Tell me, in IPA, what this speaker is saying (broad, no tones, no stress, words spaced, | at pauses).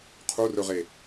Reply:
qʰurɵʁe